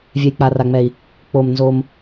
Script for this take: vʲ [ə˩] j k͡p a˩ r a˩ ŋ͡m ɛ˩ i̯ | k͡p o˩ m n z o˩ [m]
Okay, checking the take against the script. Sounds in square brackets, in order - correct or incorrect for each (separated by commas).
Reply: incorrect, correct